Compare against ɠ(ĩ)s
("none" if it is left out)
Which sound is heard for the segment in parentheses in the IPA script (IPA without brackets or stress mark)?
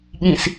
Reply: ĩ